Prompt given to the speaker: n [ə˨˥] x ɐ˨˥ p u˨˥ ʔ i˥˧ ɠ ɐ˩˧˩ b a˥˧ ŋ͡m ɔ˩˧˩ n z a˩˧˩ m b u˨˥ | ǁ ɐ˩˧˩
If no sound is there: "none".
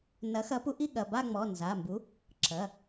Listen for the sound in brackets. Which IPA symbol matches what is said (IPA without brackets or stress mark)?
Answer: ɐ˨˥